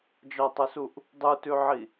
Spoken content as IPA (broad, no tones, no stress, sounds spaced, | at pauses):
d͡ʒ ɒ tˤ ɵ s u ʔ | dˤ u t ʉ ʕ i